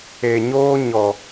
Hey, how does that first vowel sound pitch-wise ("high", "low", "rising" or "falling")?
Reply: low